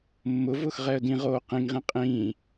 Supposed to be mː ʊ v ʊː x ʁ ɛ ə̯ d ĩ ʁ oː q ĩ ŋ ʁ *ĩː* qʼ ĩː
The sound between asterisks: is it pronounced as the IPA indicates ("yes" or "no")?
no